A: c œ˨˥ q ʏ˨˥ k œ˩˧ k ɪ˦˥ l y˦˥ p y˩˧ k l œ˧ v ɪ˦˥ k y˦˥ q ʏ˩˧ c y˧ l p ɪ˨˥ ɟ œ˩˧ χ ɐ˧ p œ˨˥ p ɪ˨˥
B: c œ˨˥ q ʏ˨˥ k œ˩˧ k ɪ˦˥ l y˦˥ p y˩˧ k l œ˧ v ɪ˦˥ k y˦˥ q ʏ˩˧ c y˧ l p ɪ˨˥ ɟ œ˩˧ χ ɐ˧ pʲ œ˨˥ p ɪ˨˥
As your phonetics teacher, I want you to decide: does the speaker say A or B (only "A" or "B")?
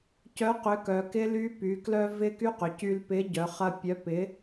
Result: B